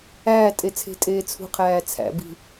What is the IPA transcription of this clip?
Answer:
æː tʼ e t͡sʰ e̤ tʼ eː t͡sʰ ṳ qʰ æː t͡sʰ æ̰ b i̤

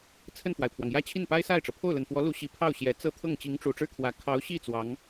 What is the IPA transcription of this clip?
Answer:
t͡sʰ ə˥˩ n f w a˩ ɪ̯ pʰ w ɑ˩ ŋ j ä˥ t͡ɕʰ i˥˩ n p a˥ ɪ̯ s a˥˩ ɪ̯ ʈ͡ʂ ɤ˩ pʰ o˥˩ ʊ̯ l ə˨˩ n f w ɔ˧˥ l u˧˥ ɕ i˨˩ pʰ ɑ˥˩ ʊ̯ ɕ j ɛ˨˩ t͡s ɤ˥˧ t̪ʰ ɤ˥˩ ŋ t͡ɕ i˧˥ ŋ ʈ͡ʂ u˨˩ ʈ͡ʂ ɻ̩˥ kʰ w ä˨˩ kʰ ɑ˧˥ ʊ̯ ɕ i˥˩ t͡s w ɑ˧˥ ŋ

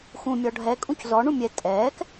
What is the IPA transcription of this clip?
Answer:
x ũ mʲ ɔ ɖʱ ɛ kʼ ũ c z ɔ ɳ ũ mʲ ɛ tʼ ɛː k

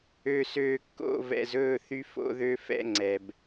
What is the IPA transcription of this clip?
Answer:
ø˨ s øː˨ kː o̰˦˨ v ɛ̰˨ z ɵː˦˨ θ y˦ f o̰˦ ð ø˦ f ɛ̰˦ ŋ͡ǀ ɛ˨ b

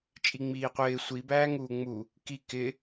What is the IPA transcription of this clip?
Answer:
t͡ʃʼ i ŋ͡m iː qʷ ɪː sʷ i b æː ŋ uː ŋ͡m u | k i k ɪ

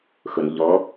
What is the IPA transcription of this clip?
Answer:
x ʊ n ʎ ɔ

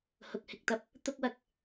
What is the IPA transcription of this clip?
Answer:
h ʊ˨ k̚ h ɪ˨ k̚ t̪ ɐ˥ p̚ | t̪ ʊ˥ k̚ w ɐ˨ k̚

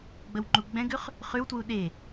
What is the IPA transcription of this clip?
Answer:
ɡ͡b ə w ŋ͡ǃ u ɡ͡b ɛ̃ ɡ ʉ χ | χ ʉ w t w u ɗ e

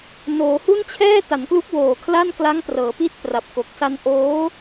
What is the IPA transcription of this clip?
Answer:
n oː˩˦ h u˥˩ n t͡ɕʰ ɛː˥˩ t a˩˦ n k l u˦˥ k̚ w oː˨˩ kʰ l a˥˩ n k l a˦˥ ŋ p r ɤː˩˦ p i˦˥ t̚ p r a˨˩ p̚ k o˨˩ k̚ s a˧ n ʔ oː˦˥

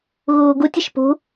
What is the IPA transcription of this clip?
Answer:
ɣ uː ɡ u tʲ ɪ ʃ p ṳ

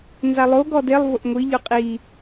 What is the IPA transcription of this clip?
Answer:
n z a lˠ o ɡ ɔ d e lˠ v ʊ ʔ ŋʷ i ʎ ʊ qʼ i

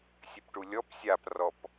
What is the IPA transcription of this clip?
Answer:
sʲ ɘ p ʈ u lʲ ɔ p sʲ a p r ɔ p

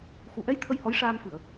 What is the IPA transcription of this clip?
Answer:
x u˨˩˨ ʔ ɛ˧˥ j t̪ʰ ə˧ j h ɔ˧˥ j ʂ aː˧ m f ɨ˨˩˨ ə̯

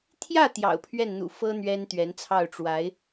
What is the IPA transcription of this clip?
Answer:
t̪ʰ j ä˥˩ t̪ j ɑ̰˨˩ ʊ̯ pʰ ɥ ɛ˥˩ n n̪ ṵ˨˩ f ɤ˥ n̪ ɥ ɛ˥ n t̪ ɥ ɛ˧˥ n t͡sʰ ɑ˥˩ ʊ̯ ʈ͡ʂ w a˧˥ ɪ̯

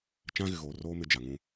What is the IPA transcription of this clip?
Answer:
t͡ʃ ã˦ ɣ ɪ˨ ɣ oː˨ r oː˦ m ɪ˦ d͡ʒ a˨ ŋ ũ˦

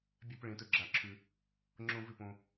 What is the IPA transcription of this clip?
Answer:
bʲ a˦ p ɭ ẽ˦ t ɵ˦ ɡ͡ǁ a˥˨ ǁʰ ʉ˦ | ŋ͡ǁ õ˦ v ʉ˥˨ p õ˦

